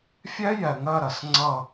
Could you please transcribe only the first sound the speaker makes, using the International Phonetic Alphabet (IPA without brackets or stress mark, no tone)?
fʲ